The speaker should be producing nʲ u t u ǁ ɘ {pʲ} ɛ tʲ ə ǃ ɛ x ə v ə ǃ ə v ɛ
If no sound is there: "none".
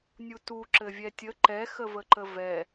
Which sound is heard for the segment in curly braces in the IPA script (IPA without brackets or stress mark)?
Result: vʲ